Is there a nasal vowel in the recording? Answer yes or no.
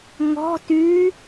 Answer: no